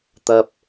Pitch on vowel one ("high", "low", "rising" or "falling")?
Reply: low